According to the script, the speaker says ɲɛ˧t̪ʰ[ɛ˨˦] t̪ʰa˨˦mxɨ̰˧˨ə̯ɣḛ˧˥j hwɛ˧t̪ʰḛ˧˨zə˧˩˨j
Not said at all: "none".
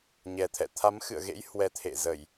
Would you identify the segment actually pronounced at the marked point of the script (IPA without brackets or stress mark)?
ɛ̰˧˨